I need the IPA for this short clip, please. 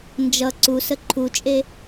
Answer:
n d͡ʒ ʌ ǀ u s ə ǃʰ u t͡ʃʼ e

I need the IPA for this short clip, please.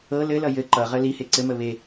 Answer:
ɤ l ɘ l ʌ j ɘ ǃ ʌ ʁ ə l i h e ǀ ɘ m ə β e

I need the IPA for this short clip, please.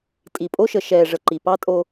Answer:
tʼ i˨ pʼ o˦ ʃ ə˨ ʃ ɛː˨ ʐ ə˨ ǃ i˨ p ɑ˦ tʼ o˦

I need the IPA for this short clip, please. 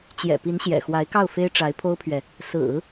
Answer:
t͡ɕ j ɛ̰˨˩ p i˧˥ n ɕ j ɛ̰˨˩ x w a˧˥ ɪ̯ k ɑ˥˩ ʊ̯ f e˥ ɪ̯ ʈ͡ʂ a˧˥ ɪ̯ pʰ o˥ ʊ̯ pʰ ɥ ɛ˨ | s ɹ̩˨˩˦

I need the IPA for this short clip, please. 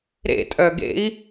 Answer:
ɾ ḛ tʼ œ ɡ ḛ i̯

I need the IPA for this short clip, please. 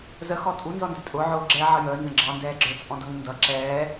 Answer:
z ə x ɔ tʼ u n z ɔ n d ə tʼ ʊ ʕ ʊː ɡ͡ǁ ɛ ʕ ʌ j əː n z ə̃ ɡ͡ǁ ɑ n d ɛː ɡ͡ǁ ə˞ t͡sʼ ɔ̃ d ʌ ŋ ɪ n d ʌ ǁ ɛː

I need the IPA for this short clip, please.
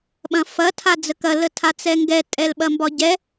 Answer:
ɓ ɐ̃ f ɐ tʰ a d͡z ə k ɐ l ə tʰ a t͡s ɛ ŋ ɡ ɛ tʼ ɛ l ɓ ɐ m b ɒ ɟ ɛ

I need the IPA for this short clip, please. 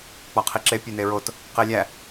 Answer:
k͡p ɒ qʰ i ǁ e pʲ e n e ɹ o t | q e lʲ æ

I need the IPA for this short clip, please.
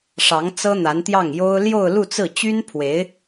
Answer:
ʂ ɑ˧˥ ŋ t͡s ɤ˥ n̪ a˧˥ n t̪ j ɑ˥˩ ŋ j o˥ ʊ̯ l j o˥˧ ʊ̯ l u˥˧ t͡s ɹ̩˥˩ t͡ɕ y˥ n pʰ w e˧˥ ɪ̯

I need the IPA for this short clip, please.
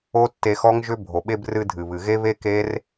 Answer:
o˦ tː e˧ x ɔ˦ ŋ ʒ ʏ˦ bʱ o˨ ɓ e˧ b r ɨ˧ dʱ ɨ˨ β ɨ˨ ɣ e˦ β e˦ k e˦ r

